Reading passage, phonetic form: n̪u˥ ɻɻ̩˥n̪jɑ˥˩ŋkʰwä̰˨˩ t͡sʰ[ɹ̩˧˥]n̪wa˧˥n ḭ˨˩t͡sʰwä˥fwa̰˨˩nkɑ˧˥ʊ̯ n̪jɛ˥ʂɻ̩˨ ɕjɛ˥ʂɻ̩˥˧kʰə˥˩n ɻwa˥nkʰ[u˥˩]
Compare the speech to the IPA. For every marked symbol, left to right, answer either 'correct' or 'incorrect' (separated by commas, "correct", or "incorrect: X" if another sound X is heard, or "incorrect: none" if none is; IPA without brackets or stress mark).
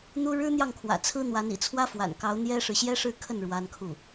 incorrect: ɹ̩˥, correct